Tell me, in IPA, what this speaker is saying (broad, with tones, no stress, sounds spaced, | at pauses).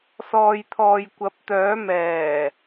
s ɔː˨ j t̪ʰ ɔː˨ j kʷ ɐ˨˥ p̚ t̪ œː˨˥ m ɛː˨˩